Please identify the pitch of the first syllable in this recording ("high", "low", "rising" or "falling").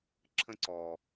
high